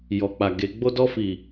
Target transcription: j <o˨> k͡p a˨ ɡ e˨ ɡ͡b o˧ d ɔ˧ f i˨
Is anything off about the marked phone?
yes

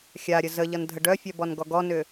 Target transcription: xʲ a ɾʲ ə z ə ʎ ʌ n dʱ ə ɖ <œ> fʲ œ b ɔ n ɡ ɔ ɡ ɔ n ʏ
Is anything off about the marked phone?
no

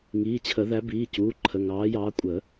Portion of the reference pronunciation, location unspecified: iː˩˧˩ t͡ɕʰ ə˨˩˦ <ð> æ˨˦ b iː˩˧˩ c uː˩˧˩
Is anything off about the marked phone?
no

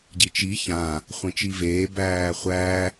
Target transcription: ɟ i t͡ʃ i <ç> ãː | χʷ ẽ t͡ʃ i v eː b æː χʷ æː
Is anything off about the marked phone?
no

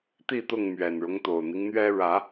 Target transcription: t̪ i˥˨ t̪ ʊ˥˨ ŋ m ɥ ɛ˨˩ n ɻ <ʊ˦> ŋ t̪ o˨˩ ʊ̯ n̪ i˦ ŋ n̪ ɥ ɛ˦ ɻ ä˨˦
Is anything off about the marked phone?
no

